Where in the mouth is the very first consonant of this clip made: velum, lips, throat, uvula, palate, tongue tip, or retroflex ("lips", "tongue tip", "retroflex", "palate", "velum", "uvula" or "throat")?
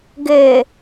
velum